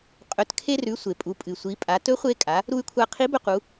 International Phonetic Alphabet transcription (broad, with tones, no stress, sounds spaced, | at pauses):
qʼ ɵ˩˧ t kʰ e˧ r ʉ˩˧ sʷ e˩ pʼ u˩˧ pʼ ɨ˩ sʷ i˩˧ pʼ a˩˧ t ɵ˧˥ χʷ e˧ kʼ a˩˧ | ɾ u˧ y̯ kʷʰ a˧ qʰ i˧˥ b ɵ˧ q u˩˧